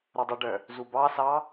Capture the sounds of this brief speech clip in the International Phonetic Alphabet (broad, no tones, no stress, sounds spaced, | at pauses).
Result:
ɾ œ dˤ u ɖ œ | z u b ɑ s ɑ